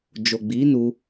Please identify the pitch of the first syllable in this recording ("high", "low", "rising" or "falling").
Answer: low